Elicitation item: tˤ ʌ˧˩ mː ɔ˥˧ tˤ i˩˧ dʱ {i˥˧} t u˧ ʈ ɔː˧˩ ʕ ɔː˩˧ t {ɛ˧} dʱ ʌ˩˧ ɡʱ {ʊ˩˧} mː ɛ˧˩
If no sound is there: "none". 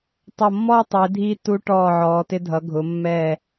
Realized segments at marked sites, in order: i˧, ɪ˧, ʊ˩˧

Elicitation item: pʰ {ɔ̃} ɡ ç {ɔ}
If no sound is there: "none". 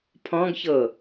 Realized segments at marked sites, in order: ɔ̃, ɤ

